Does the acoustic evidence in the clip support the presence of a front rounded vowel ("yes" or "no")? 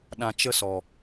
no